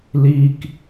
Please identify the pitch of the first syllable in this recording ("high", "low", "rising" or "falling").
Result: low